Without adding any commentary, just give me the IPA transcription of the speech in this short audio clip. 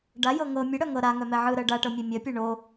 ɖ a j ɤ ŋ ɤ mʲ ə ɽ œ ŋ ɤ ɾ a ŋ œ m ɛ ʕ ɯ ɾ ɜ ɖ a ʈ ɤ mʲ ɛ mʲ ɜ pʲ ɛ ɳ o

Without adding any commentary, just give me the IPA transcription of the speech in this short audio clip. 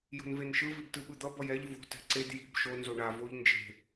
j o̤ n v e n ʃ ɯ v i b t ɯ ɓ ɯ d̪ ʌ b ʌ j ɛ ʎ v o̤ t ɛ̤ ǀ e d j i̤ b ʃ o n z o ɳ a v o ʎ n d͡ʒ e̤

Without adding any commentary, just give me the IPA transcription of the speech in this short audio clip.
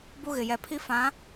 b u˦ ɣ ɪ˨ j ɛ˨ pʰ i˦ f ã˨˦

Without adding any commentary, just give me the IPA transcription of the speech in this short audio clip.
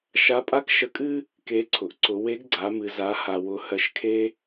ʃ a˧˥ pʼ a˥ k ʃ ə˧ kʼ ɨ˥ | k e˧˥ ǀʰ ʊ˩ ʔ ǀ ʊ˩˧ w e˧˥ ɡ ɡ͡ǀ a˩˧ m ɨ˩ z a˩˧ h a˩ w ʊ˩ h ɜ˩ ʃ kʰ e˧

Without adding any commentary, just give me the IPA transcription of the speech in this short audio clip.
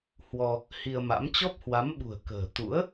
h w ɔ˧ | h i˧ ə̯ m a̰˧˥ m t͡ɕ ɔ˦˥ p̚ h w a˨˦ m ɓ ṳ˨˩ ə̯ k ə̤ː˨˩ t̪ ṵ˧˥ ə̯

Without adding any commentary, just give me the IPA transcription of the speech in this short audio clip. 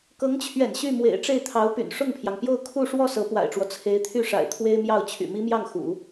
k ɤ˧˥ ŋ t͡ɕʰ ɥ ɛ̰˨˩ n ɕ y˥˩ m w ḛ˨˩ ɪ̯ ʈ͡ʂ e˥˩ ɪ̯ t̪ʰ ɑ˧˥ ʊ̯ p y̰˨˩ n ʂ ʊ˥˩ ŋ pʰ j ɑ˩ ŋ p j o˥˧ ʊ̯ kʰ u˥˧ ʂ w ɔ˥˩ s ɤ˧˥ p w a̰˨˩ ɪ̯ ʈ͡ʂ w ɔ˦ t͡sʰ e˧˥ ɪ̯ t̪ʰ y˥˩ ʂ a̰˨˩ ɪ̯ t̪ʰ w e˥ ɪ̯ m j ɑ˥˩ ʊ̯ t͡ɕʰ y̰˨˩ m i˥ m j ɑ˥˩ ŋ x ṵ˨˩˦

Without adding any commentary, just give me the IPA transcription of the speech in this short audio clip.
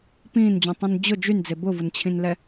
p ĩː n d͡ʑ ũ tˤ ũ n d͡ʑ ʊ d͡ʒ y n d͡z e b ʊ v ʊ n t͡ɕʰ ĩ n l ɛ

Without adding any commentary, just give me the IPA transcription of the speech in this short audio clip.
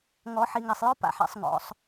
ŋ ɔ˨˦ ħ i˨ ŋ a˨ sˤ j ɔ˦ p a̰˨ ħ ɛ̰˦˨ sˤ ŋ ɔ̰˨˦ sˤ

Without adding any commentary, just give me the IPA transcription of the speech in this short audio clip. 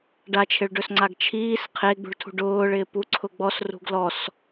ɖ a t͡ʃʰ ɪ ɭ ɖ ɵ s ŋ͡ǀ a ɡ t͡ʃʰ iː s qʰ e ɡ͡b ṳ ɭ tʰ ṳ ɖ ʊː ɭ ɪː p u ǀʰ ʊ ɡ͡b ɔ s r ṳ ɡ l ɔ s

